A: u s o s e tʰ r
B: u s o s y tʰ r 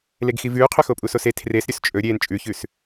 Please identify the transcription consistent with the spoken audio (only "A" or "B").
A